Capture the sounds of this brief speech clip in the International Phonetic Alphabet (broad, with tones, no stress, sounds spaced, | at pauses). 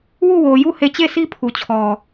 w u˦˨ w o˨ j u˦˨ h e˦˨ t͡ɕ e˦˨ sʰ i˦ pʰ u˨ t͡ɕʰ ɔ˨